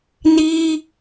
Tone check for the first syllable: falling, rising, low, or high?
high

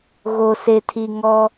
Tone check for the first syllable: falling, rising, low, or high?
low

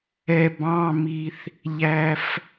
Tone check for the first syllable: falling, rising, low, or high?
low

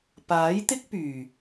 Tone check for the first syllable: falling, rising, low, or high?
rising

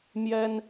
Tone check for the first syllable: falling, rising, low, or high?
high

